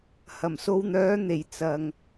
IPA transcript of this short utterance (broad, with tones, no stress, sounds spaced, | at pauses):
h ɐ˨˩ m s o˧ w n̪ œː˨˥ n̪ e˨˩ j t͡s ɐ˨ ŋ